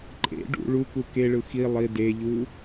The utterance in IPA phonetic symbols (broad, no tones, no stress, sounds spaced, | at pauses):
ǃʼ ḛ ɖ ṵ ɭ u k u k e ɭ ɯ x i lˠ i d e ʎ u